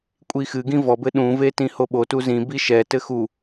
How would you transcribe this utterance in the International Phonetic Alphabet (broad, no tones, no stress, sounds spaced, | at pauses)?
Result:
kʷʼ i x ɨ ɡ ĩ v ɔ b ɘ ɗ ũ v e t ĩ h o ɓ o t u z ĩ b i ʃ ɛ t ɘ x u